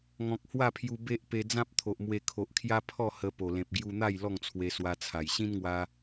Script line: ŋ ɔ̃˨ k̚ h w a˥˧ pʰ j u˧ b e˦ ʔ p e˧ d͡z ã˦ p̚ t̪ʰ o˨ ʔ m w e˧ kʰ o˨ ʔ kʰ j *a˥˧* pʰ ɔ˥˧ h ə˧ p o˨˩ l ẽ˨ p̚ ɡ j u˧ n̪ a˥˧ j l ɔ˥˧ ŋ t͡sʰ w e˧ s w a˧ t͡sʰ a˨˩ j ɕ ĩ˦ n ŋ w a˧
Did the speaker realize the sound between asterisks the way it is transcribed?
no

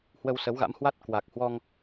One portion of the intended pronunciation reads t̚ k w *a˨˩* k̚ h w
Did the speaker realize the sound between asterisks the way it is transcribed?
yes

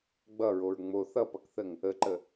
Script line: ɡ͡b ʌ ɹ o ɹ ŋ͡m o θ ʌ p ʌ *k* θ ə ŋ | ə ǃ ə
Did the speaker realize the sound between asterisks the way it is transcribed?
yes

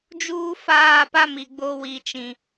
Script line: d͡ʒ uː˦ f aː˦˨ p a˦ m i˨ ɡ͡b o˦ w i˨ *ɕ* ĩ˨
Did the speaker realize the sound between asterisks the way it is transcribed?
no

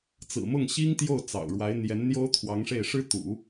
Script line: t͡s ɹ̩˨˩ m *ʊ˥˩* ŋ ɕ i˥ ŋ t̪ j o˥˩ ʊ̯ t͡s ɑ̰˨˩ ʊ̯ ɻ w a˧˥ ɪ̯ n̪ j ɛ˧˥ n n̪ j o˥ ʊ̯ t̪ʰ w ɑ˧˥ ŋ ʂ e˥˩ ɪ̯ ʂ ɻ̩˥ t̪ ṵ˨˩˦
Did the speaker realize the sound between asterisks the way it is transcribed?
yes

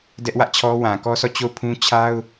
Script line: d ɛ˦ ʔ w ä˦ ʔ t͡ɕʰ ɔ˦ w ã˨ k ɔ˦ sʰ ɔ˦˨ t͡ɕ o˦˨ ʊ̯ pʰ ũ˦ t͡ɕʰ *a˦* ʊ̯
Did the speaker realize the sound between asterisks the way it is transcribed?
yes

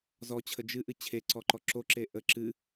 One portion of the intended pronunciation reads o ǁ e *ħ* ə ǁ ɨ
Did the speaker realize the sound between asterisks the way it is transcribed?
no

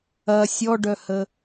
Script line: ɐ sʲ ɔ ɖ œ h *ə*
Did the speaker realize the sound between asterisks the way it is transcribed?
yes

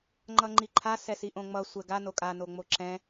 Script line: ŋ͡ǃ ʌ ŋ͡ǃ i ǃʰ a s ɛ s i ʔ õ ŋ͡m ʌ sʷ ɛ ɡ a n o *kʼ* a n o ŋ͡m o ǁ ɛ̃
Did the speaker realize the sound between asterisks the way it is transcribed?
yes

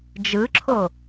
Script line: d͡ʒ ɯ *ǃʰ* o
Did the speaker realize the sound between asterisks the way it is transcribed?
no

